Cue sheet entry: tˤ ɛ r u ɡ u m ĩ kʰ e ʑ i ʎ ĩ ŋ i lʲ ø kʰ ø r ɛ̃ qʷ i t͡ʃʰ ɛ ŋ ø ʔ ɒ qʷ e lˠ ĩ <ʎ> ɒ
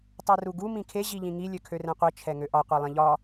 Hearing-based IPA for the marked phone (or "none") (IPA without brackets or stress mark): ʎ